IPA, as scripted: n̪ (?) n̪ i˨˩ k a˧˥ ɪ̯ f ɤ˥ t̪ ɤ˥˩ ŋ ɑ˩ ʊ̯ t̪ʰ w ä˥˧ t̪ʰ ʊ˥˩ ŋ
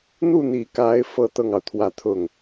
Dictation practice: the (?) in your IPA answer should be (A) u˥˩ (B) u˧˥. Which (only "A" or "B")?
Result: A